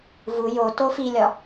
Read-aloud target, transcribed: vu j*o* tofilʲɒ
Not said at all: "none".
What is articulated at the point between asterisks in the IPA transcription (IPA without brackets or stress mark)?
o